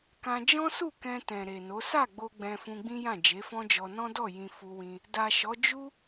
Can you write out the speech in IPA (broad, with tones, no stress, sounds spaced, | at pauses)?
k ã˧ d͡ʒ ɔ̃˦ s u˦˨ k ɛ̃˧ t ɛ̃˨ ɾ e˨ n o˨˦ s a˦˨ ɡ͡b o˧ ɡ͡b ɛ̃˧ f ũ˧ ɡ͡b ĩ˦ j ã˦˨ d͡ʒ e˨˦ f ɔ̃˦ d͡ʒ ɔ˧ n ɔ̃˦ d ɔ˦˨ j ĩ˧ f u˧ w ĩ˧ | d a˨ ʃ ɔ˨˦ d͡ʒ u˦